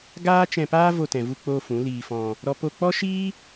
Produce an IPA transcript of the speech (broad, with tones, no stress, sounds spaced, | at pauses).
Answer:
ɡ aː˦ t͡ʃ ɛ̃˧ p aː˦ v o˧ t ɛ̃˨ v u˧ k͡p oː˧ f ũ˨˦ l iː˧ f ɔ̃˧ | ɾ ɔ˦ p o˧ k͡p ɔ˦ ʃ iː˦